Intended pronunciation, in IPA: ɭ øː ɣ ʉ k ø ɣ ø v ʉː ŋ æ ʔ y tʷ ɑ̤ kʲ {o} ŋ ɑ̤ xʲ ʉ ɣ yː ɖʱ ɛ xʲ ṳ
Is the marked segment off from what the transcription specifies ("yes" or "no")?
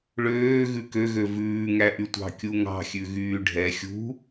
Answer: yes